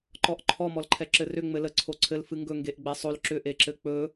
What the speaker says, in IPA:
ǃɔʔǃʰɔ mɔlǃʰɛǁɘrʏ ŋ͡mɘlə ǀʰoǀʰɘl fɨŋɡɵ ŋɡeʔɡ͡bɛsˤol ǁʏ ʔeǁɘk͡pɵ

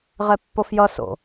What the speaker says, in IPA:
ʁɛpːofjʌ so̰

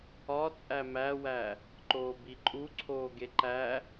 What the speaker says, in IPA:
ɒ t͡sʼæmæwæ | ǃoːbiǃʼu ǀʰoːɡeǃæ

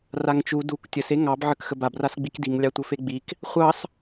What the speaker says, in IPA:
raŋt͡ʃu duk tʲəs eŋɑb ʕəkxəbab rasɡ͡bikdiŋ lʲɑtʷəfeɡ͡bik | χʷɑs

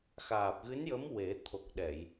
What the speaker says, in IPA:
xaː˨˩p̚ɣɨ˧˥njə˧˥m we˨˩˦ t̪ʰo˨˩k̚ɗɛ˨˩˨j

